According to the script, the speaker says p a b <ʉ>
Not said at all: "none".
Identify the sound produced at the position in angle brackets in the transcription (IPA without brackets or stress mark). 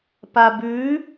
ʉ